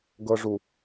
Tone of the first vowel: low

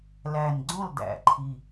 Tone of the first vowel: low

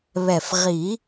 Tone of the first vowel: low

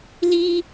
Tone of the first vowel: high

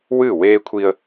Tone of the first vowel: falling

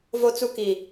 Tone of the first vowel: high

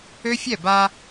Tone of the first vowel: high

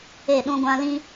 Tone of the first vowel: falling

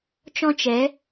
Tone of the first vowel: high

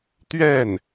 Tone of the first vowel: falling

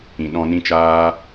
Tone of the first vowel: low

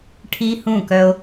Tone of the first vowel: high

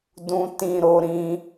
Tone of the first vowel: high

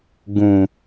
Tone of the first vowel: low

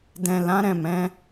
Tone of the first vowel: low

